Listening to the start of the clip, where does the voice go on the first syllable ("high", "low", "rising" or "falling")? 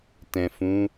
low